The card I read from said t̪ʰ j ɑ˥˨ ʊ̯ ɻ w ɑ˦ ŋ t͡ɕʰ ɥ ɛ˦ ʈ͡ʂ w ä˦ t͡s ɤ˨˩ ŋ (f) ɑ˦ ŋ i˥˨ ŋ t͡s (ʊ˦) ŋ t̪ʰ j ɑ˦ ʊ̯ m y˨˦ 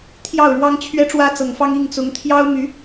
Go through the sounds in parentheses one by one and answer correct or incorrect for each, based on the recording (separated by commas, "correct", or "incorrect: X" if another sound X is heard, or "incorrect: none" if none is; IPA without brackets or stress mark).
correct, incorrect: ʊ˨˦